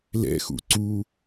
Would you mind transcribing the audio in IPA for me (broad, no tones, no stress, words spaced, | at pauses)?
lɛ̰xṵ ǀu